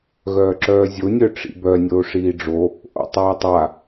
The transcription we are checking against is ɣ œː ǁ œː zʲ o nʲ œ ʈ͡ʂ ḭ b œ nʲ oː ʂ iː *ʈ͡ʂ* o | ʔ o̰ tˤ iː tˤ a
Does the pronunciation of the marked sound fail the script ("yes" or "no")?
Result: yes